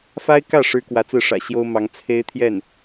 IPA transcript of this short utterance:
f a˥ ɪ̯ k ä˥˩ ʂ ɻ̩˥ k w ä˧˥ t͡s ɹ̩˥˩ ʂ ä̰˨˩ ɕ j o˥ ʊ̯ m ɑ˧˥ ŋ t͡sʰ e˥ ɪ̯ t̪ʰ j ɛ˥˩ n

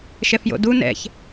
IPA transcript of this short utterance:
ʃ ɛ f j o̰ d u n ɛ̰ ç

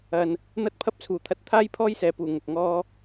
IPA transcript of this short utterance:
ɐ˨ n | n̪ ɐ˥ t̚ pʰ ɐ˥ p̚ t͡sʰ uː˨˩ t̪ʰ ɐ˧ t̚ t̪ʰ aː˥ j pʰ ɔː˥ j s ɛː˨ p uː˨˩ ŋ ʊ˨ k̚ ŋ ɔː˥

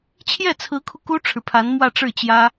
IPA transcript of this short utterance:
t͡ɕʰ j ɛ˥˩ t͡sʰ ɹ̩˧˥ kʰ u˧ k u˥ ʈ͡ʂʰ ɻ̩˨ pʰ a˧˥ n m w ä˥˧ ʈ͡ʂ ɻ̩˥˩ t͡ɕ j ä˥

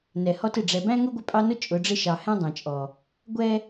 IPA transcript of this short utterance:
n ɛ˨ h ɔ˦ t ɪ˨ ɖ͡ʐ ɛ˨ b æ̃˦ ŋ ʊ˦ ɡʷ ɪ˦ pʼ ɑ˦ n ʊ˦ t͡ʃʼ ʊ˨˦ ɖ͡ʐ ɪ˦ ʃ ɑ˨ h ɛ̃˦ dˤ ɛ̃˨ t͡ʃʼ ɔ˨ | ɡʷ ɛ˦

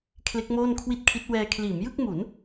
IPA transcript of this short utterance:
kʰ l e˦˥ k̚ m oː˥˩ n kʰ w i˥˩ t̚ kʰ i˦˥ t̚ w ɛː˧ kʰ l iː˩˦ m j ɯ˥˩ k̚ m u˩˦ n

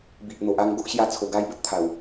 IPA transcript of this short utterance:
b i˨ ʔ n̪ o˨ ʔ a˧ ŋ ɡ o˦ ʔ ɕ j a˧ t͡sʰ o˨˩ ɡ a˧ j b ə˦ t̚ t̪ʰ a˨˩ w

